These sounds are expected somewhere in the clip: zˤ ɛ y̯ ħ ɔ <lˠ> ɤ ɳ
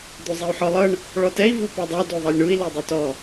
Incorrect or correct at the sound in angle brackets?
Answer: correct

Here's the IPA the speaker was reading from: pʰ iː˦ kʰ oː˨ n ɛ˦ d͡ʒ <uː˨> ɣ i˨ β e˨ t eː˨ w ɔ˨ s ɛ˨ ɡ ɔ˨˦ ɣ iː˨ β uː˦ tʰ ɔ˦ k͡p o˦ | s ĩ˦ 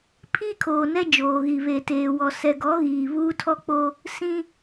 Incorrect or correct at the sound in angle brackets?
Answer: incorrect: oː˨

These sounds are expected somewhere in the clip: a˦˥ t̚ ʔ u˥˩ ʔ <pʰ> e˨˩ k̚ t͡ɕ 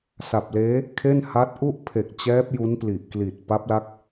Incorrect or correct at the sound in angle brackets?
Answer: correct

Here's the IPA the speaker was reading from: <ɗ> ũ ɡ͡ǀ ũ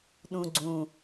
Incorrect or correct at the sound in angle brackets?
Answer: correct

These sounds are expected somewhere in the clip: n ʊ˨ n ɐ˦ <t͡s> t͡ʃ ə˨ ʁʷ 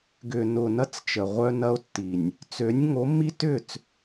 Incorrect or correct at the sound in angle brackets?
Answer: correct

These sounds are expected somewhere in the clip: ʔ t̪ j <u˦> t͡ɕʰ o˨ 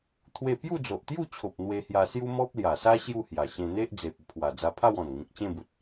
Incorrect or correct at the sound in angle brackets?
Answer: incorrect: u˥˧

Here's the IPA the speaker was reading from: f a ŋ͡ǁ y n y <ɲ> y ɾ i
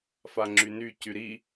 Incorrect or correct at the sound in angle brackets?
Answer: incorrect: c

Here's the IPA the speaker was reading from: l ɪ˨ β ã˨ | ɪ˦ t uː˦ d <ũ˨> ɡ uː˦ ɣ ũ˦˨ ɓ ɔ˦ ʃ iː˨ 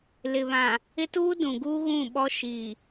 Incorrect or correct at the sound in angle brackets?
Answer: correct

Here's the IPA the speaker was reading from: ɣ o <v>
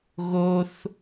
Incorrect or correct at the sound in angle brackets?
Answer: incorrect: θ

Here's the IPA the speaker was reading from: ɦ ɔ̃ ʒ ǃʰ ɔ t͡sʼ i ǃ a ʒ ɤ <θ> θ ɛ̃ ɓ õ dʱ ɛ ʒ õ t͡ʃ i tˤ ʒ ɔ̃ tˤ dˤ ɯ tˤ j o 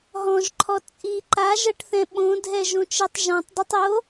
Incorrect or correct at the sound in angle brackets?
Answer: incorrect: ʈ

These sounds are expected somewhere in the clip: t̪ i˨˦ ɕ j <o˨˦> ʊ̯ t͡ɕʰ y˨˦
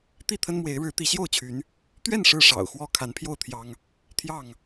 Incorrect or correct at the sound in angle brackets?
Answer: incorrect: o˥˨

